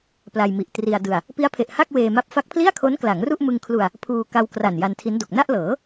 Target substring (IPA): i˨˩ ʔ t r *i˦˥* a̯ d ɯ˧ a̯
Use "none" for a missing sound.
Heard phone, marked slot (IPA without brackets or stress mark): i˧